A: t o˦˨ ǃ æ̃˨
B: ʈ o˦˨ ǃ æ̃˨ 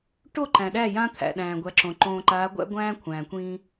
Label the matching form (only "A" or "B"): B